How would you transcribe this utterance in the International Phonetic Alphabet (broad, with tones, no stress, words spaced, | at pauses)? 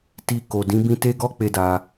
ti˧ ko˨ dĩ˨˦bĩ˦ te˦ɡɔ˦ k͡pe˦da˧